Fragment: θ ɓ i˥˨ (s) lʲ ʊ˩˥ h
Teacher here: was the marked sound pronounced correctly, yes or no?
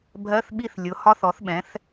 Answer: no